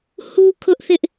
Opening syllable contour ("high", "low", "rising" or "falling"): high